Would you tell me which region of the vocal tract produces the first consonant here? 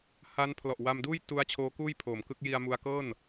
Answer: throat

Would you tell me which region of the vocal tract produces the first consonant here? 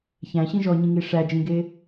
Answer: palate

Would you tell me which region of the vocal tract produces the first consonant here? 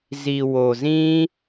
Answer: tongue tip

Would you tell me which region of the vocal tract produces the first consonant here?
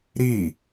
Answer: tongue tip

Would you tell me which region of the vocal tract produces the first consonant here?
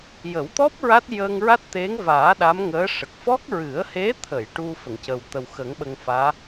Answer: palate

